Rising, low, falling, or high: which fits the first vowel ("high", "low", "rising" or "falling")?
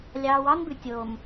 low